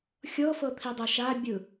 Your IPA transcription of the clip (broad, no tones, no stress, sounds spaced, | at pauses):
xʲ ɤ f ɤ t̪ʰ i dˤ ɤ ʃ a bʲ ɯ